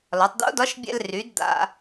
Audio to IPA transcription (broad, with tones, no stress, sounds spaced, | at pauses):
l ɒ˩˧ tˤ d̪ o̰˧˥ d ɒ˧˥ ʃ bʲ ɛ̰˧ l r y˩˧ d d̪ a̰˧